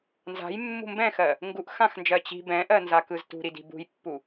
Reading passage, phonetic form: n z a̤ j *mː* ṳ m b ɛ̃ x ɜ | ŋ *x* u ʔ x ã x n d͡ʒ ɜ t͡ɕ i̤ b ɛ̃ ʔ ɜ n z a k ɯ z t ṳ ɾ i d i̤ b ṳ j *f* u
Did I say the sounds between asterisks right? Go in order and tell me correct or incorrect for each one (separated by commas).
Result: correct, incorrect, incorrect